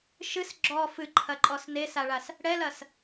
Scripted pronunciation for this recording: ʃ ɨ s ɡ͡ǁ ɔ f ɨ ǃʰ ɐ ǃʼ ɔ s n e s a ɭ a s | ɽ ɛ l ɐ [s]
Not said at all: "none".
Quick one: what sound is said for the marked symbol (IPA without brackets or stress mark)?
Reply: s